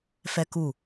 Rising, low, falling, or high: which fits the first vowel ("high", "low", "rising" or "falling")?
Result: high